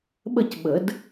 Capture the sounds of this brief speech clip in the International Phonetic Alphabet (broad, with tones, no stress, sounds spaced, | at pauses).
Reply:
ɓ ə˥˨ c ɓ ə˨˩˦ d